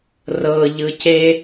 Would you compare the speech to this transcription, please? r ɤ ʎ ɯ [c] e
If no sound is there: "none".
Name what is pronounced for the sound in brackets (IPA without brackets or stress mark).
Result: c